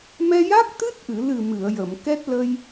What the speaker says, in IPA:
m ɛ˧ j a˦˥ k̚ t̪ ɨ˦˥ t̚ ʔ ɨ˨˩˨ l ɨ˨˩ m ɨ˨˩˨ ə̯ j ə˨˩˨ m k ɛ˦˥ t̚ l ə˧ j

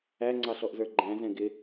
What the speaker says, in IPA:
æ ŋ͡ǀ ɑ ɬ ɔ ʔ z ə˞ ɡ͡ǃ æ̃ z ɛ̃ ɡ ɪ

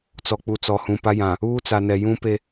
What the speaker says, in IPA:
t͡s ɔ˨ k͡p u˨ t͡s ɔ˨ h ũ˨ p a˦ j ã˨ | uː˦ t͡s a˨ n ɛ˨ j ũ˦ p e˦

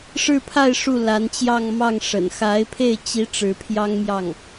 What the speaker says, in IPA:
ʂ ɻ̩˥˧ pʰ a˥˧ ɪ̯ ʂ u˥˩ l a˧˥ n t͡ɕ j ɑ˥˧ ŋ m ɑ˥˩ ŋ ʂ ə̰˨˩ n x a˧˥ ɪ̯ pʰ e˥˩ ɪ̯ t͡ɕ i˥ ʈ͡ʂ ɻ̩˧˥ pʰ j ɑ˥ ŋ m j ɑ˥˩ ŋ

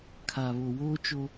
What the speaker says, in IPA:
kʰ a˨ β o˨ w oː˦ t͡ʃ o˦

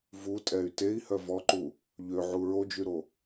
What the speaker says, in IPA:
v u tʼ ɛ y̯ t e i̯ h œ v ɔ ǃ u | ʎ ø ʕ u ɹ o d͡ʒ y ɾ o

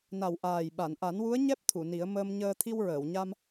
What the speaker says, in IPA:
n a˨˩ w ʔ aː˨˩ j ɓ a˨˩˨ n ʔ a˨˩˦ n w u˧˥ ə̯ ɲ ɛ˦˥ p̚ t̪ʰ u˨˩˨ n i˨˩˦ ə̯ m əː˧ m ɲ əː˧ t̪ʰ i˧ w ɹ əː˨˩˨ w ɲ a˧ m

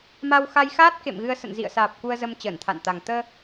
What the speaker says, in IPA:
m a˧ w x a˧ j x aː˦˥ t̚ k ḛ˧˨ m ɣ ɨ˧ ə̯ s ə̰˧˨ n z ḭ˧˨ ə̯ s aː˨˩ p̚ k u˧ ə̯ z ə˧ m t͡ɕ əː˧˩ n t̪ʰ a̰˧˨ n t̪ a˨˩ ŋ t̪ əː˧

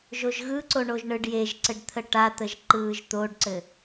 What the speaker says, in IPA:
ʒ o ʒ ɣ ɯ ǀ o ɳ o ʒ ɳ ɯ ɖ j e ʒ ǀ ɘ ɖ t̪ʰ ə ʈ a t̪ ə ʒ ǃ ɯː ʒ t̪ o ɖ ǀ ɘ

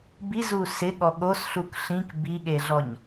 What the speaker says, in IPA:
b i z u s ɪ ɠ ɔ ɠ o s ɬ u k ɬ ĩ k b i ɠ e ɮ ɔ ɲ

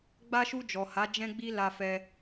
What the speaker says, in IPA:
ɡ͡b a˧ ʃ u˧ d͡ʒ ɔ˨ h a˨˦ d͡ʒ ɛ̃˦ ɡ͡b i˦ l a˧ f ɛ˧

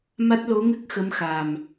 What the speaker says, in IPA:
m a˦˥ t̚ l o˧˥ ŋ ɨ˦˥ k̚ x ə˧˥ m x a˨˩ m

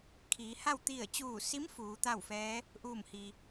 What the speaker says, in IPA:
kʰ iː˩˧ h a˥˨ w t̪ i˧˩ ə̯ t͡ɕ uː˧˩ s i˧˥ m f uː˩˧ t̪ a˥˨ w f ɛː˧˥ | ʔ uː˧˩ m h i˩

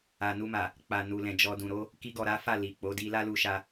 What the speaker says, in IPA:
a˨ n u˧ m a˨ | k͡p a˨ n u˨ l ɛ̃˨ d͡ʒ ɔ˨ d ũ˨ ɾ o˨˦ | k i˧ ɡ ɔ˨ ɾ a˨˦ f a˦˨ l i˨ k͡p o˨˦ d i˦ l a˦ l u˧ ʃ a˧

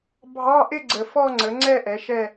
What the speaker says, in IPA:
bʱ ɑ˧˥˧ ʔ ɪ˥˧ ɡ͡ǀ ə˨ f ɔ˥˧ ŋ͡ǀ ə˩˥ ŋ͡ǀ ɛ˥˧ ʔ ɛ˩˥ ʃ ɛ˥˧

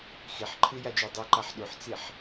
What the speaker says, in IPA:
x i ħ ǃʰ ɯ j a d͡ʒ o dˤ u ǃ a ħ ɗ u ħ t͡s i ħ

